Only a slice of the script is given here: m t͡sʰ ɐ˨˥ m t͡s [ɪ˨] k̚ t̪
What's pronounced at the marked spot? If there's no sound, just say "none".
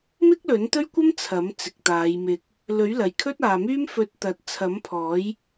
ɪ˨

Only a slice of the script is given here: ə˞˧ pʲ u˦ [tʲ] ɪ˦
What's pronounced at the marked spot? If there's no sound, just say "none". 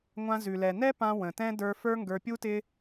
t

